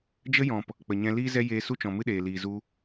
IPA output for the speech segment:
d͡ʒ ə˦ j ɔ̃˨ p | k͡p ə˨ ɲ ɛ̃˧ l iː˦ z ɛ˦ j eː˧ s u˦ t͡ʃ ɔ̃˨ m ɨ˦ ɗ eː˨ l iː˨ z u˧

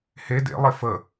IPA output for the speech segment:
h e d ḛ lˠ e f ə

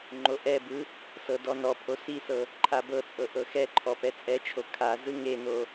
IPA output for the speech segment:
ŋ͡ǃ o ʔ ɛ b ɯ | s ɤ d ɔ n ɔ pʰ o s i s ɤ | ǃʰ a b ɤ t͡sʼ ɤ ʔ ɤ x ɛ ǃʰ ɔ p ɛ t͡sʼ ɛ t͡ʃʰ o kʰ a z ɯ ŋ e n o

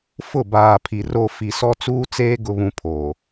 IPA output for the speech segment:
f ʊ˦˨ b aː˨ pʰ i˨ r o˨ f i˨ s ɔ˦ t͡s uː˦ t͡s eː˦ ɡ ʊ˦ β ũ˦ pʰ oː˨

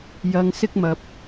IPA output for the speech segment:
j ɐ˧ ŋ s ɪ˥ k̚ m ɐ˧ p̚

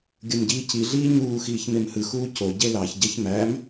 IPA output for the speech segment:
ɡʲ ɯ m ɟ iː c i ɮ iː ɲ uː x iː ç m e m h ɯ x uː c o ɟ e l ɑ ç ɟ e ç m æ m

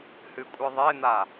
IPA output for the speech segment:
h ɨ kʷʼ ɨ ðˤ e n̪ a

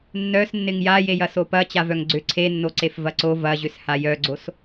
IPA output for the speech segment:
nː œ s nː ɪ ŋ j a j e j ɐ s o p ɐ t͡ɕ a v œ ŋ ɡ͡ǀ ʏ ǀʰ e nː o ǀ e f v ɐ ǀ o v ɐ ʑ ʏ s h a j œ ɡ͡ǀ o s

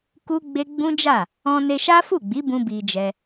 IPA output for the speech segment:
k u˦ ɡ͡b e˦ ɡ͡b ũ˦ d͡ʒ a˦˨ | ɔ̃˧ n e˧ ʃ a˦ f u˦˨ ɡ͡b i˨˦ b ũ˧ b i˧ d͡ʒ ɛ˧

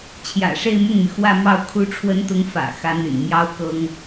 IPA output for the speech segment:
t͡ɕʰ j ä̰˨˩ ʂ e˥˧ ɪ̯ m ʊ˥˩ ŋ m y˩ x w ä˥˧ m ɑ˥˩ ʊ̯ kʰ u˧˥ ʈ͡ʂʰ w ə˧˥ n t̪ ʊ˧˥ ŋ f ä̰˨˩ x ä˧˥ n̪ y̰˨˩ n m j ɑ˥ ʊ̯ k ɤ˥ ŋ

